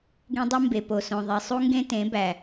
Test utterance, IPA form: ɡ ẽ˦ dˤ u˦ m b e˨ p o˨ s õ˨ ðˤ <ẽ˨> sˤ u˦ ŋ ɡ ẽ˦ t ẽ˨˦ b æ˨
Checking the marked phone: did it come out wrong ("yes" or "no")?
yes